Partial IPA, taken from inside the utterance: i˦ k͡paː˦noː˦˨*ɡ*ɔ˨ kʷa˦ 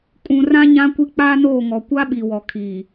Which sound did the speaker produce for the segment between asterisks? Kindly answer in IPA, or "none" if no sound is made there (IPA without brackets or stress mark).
ŋ